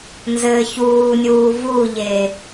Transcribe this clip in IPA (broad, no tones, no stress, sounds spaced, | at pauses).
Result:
n z ɘː ç uː nʲ uː v u ʎ e